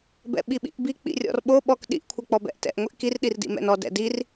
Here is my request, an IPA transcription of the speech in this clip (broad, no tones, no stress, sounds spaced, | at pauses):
b ɛ̰ ɓ i ɓ ḭ ʔ b i k͡p ḭ rʲ ɔ̰ r ɓ o ɓ ɔ k ɗ ḭ ʔ kʷʰ ɛ k͡p ɔ b ɛ̰ ʔ t ɛ̰ ʔ ŋʷ i ʔ k i r ɗ i r d ḭ m ɛ̰ n ɔ d ɛ̰ d i r